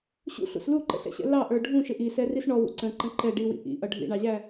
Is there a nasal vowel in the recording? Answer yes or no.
yes